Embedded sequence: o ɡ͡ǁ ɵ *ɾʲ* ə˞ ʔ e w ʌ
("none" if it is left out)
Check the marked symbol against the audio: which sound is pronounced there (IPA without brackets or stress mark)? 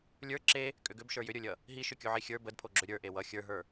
ɾʲ